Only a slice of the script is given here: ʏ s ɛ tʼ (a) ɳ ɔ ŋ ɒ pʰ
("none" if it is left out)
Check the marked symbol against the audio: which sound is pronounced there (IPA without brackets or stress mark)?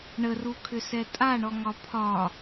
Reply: a